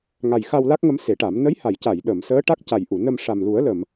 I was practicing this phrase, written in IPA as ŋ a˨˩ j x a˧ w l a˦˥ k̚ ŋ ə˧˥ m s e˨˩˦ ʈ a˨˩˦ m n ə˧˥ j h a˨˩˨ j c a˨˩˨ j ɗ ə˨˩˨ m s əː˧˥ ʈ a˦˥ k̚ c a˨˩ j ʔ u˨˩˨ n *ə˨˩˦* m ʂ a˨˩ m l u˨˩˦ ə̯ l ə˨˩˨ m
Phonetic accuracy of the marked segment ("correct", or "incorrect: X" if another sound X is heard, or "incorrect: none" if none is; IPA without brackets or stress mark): incorrect: ə˧